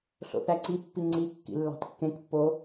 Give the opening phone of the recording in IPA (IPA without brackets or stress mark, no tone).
ɬ